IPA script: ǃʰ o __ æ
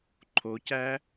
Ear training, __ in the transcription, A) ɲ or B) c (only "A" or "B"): B